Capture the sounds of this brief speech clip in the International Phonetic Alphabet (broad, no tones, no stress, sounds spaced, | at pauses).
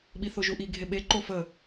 ɓ i θ o ʒ u ʔ i ɡʱ e ɓ e ǃ o f ə